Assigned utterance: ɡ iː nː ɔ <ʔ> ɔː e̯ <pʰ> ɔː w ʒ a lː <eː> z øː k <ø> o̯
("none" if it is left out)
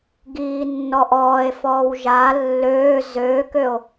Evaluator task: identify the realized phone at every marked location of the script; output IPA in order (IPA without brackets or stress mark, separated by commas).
ʔ, f, øː, ø